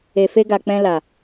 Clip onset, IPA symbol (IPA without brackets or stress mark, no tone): e